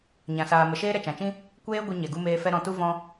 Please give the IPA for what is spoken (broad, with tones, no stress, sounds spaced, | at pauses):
ɲ ã˨ s aː˨ m ə˨ ʃ eː˦ ɾ ɛ˨ t͡ʃ ã˨ t͡ʃ ĩ˦ | kʷ eː˦ ɡʷ ɛ˧ ɲ ɛ˨ ɡ u˧ m eː˧ f ɛ˧ ɾ ɔ̃˨ t u˧ v ɔ̃˧